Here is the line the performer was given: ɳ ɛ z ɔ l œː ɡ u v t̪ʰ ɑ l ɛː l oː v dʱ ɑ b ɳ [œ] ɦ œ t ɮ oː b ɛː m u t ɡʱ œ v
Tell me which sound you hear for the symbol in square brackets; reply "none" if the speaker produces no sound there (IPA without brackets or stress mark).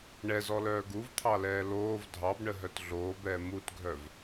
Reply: ə